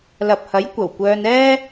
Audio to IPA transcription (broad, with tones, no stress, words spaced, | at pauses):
lɐ˨p̚hɐ˨˥jkʷɐ˨˩w kʷœː˧nɛː˥